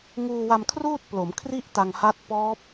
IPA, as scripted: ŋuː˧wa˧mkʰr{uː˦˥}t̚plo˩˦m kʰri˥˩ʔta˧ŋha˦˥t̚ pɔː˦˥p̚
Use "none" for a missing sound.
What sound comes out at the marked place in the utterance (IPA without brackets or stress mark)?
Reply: uː˥˩